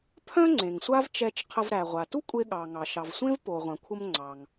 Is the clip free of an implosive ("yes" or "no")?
no